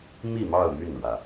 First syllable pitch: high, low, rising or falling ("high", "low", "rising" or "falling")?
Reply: falling